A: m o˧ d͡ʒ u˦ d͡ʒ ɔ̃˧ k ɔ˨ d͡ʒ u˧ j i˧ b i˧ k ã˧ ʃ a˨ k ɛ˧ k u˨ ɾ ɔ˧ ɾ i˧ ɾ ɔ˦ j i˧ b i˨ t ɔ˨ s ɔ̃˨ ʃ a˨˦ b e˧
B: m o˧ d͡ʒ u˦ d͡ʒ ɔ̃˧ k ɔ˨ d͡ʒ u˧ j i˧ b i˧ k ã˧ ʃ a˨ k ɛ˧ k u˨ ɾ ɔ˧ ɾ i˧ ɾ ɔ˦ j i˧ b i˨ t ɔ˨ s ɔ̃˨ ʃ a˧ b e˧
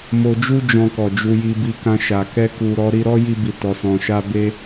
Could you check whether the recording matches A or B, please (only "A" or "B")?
B